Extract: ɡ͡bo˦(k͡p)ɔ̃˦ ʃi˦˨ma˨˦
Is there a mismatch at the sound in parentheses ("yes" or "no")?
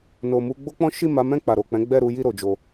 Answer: no